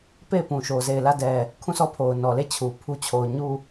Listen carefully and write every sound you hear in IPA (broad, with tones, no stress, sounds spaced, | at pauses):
p e˦˨ ɪ̯ p ũ˨ ʃ o˨ z e˦˨ ɪ̯ l ä˦˨ d ɛ˨ | kʰ ũ˦˨ sʰ ɔ˦˨ pʰ o˨ ʊ̯ n ɔ˨ l e˦˨ t͡ɕʰ u˨ pʰ u˦ t͡ɕʰ o˨ ʊ̯ ɲ u˦˨